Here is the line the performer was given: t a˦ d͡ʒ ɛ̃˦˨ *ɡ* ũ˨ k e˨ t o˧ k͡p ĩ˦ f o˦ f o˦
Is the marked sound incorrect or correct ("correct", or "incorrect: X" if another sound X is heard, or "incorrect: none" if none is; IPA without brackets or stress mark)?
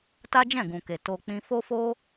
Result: correct